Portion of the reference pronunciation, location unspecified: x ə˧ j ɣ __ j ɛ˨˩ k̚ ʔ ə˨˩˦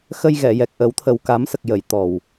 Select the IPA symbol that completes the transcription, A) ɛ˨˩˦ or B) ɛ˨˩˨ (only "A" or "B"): B